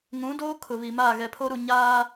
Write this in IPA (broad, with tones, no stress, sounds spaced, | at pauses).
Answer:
ŋ ũ˨˦ d oː˦ kʰ ʊ˨ β i˨ m a˦˨ ɣ ɛ˨ pʰ o˦ ɾ u˨ ɲ aː˦